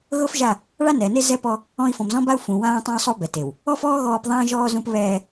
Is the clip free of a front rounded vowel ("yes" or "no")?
yes